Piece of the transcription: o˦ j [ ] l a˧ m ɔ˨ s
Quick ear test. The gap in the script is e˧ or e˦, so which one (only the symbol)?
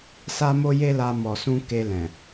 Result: e˦